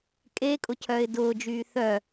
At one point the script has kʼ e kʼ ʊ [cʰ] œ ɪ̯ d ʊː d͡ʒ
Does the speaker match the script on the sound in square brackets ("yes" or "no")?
yes